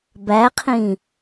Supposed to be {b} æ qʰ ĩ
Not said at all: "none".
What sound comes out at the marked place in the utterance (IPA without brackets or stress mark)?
b